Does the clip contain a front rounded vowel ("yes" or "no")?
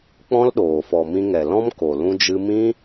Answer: no